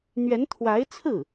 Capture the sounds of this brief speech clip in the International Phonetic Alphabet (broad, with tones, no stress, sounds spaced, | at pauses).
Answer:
n̪ ɥ ɛ˧˥ n t̪ʰ w a˧˥ ɪ̯ t͡sʰ ɹ̩˥˩